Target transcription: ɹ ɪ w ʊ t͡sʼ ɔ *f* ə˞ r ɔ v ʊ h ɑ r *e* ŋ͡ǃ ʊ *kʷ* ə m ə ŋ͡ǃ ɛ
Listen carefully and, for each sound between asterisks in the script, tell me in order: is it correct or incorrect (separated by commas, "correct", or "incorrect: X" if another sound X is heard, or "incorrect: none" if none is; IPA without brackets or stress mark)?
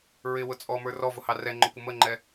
incorrect: m, incorrect: ɛ, correct